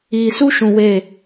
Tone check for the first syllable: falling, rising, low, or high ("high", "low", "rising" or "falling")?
low